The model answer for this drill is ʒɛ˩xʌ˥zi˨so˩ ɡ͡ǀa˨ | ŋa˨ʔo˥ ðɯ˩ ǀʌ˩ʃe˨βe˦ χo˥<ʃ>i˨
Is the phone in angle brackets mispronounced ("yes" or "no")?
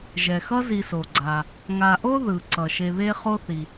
yes